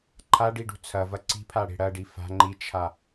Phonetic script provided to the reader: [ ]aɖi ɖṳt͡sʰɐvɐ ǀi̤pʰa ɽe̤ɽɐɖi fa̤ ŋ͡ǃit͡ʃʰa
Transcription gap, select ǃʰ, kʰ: ǃʰ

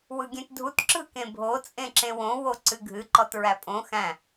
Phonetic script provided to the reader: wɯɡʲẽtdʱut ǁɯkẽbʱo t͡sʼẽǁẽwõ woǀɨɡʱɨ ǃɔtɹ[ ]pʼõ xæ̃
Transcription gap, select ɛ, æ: æ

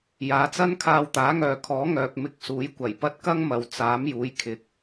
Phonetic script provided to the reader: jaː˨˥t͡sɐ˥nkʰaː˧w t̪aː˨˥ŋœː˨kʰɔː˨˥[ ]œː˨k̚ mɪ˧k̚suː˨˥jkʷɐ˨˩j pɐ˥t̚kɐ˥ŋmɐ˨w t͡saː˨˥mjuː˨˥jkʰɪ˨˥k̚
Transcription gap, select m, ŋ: ŋ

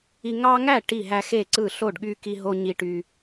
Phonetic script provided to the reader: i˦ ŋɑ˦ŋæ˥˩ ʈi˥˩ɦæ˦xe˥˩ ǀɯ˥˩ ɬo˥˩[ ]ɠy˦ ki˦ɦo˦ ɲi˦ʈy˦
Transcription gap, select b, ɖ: ɖ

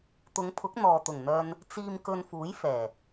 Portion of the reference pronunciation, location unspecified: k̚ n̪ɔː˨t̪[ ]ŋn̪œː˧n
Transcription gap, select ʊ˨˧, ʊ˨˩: ʊ˨˩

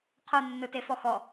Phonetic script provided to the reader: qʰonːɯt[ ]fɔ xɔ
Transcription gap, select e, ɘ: e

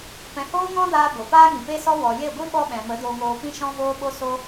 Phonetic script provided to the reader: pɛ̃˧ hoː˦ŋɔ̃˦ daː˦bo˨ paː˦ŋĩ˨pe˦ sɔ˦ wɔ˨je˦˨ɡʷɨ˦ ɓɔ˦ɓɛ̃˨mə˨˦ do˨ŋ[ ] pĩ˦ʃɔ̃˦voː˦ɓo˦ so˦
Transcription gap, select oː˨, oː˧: oː˨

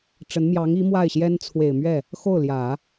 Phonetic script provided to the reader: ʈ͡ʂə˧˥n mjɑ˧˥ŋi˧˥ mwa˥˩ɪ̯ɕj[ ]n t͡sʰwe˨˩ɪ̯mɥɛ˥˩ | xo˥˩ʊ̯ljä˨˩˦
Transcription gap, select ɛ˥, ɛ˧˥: ɛ˥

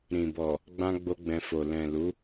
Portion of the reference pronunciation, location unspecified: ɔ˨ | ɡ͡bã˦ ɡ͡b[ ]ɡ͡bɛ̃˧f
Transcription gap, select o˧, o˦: o˦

